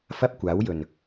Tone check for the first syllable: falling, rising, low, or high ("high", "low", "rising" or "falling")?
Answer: high